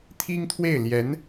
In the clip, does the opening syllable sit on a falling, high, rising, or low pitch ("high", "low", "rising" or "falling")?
high